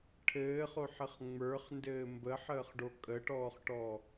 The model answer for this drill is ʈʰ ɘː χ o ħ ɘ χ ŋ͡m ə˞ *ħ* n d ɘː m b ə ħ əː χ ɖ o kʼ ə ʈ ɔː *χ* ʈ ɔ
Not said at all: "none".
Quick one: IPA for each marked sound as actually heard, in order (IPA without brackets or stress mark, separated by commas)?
χ, χ